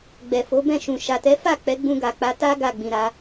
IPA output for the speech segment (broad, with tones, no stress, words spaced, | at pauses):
ɡ͡bɛ˨fo˨˦ bɛ̃˦˨ʃũ˨ ʃa˨tɛ˨˦ fa˦˨ k͡pɛ˨˦ɡ͡bũ˧ɡa˨k͡pa˨˦ ta˦ ɡa˦˨ɡ͡bĩ˨ɾa˨˦